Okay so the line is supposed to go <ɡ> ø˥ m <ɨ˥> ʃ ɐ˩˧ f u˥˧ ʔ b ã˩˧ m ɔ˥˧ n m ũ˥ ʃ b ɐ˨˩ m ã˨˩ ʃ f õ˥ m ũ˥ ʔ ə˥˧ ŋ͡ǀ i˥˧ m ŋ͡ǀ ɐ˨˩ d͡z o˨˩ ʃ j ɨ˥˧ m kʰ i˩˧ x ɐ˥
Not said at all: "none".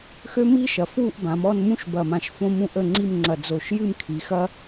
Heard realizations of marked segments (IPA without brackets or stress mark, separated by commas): x, i˥